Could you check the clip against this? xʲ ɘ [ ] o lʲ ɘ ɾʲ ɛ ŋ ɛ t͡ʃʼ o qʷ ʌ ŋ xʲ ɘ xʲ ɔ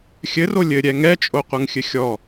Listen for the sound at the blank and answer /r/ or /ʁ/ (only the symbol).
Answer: r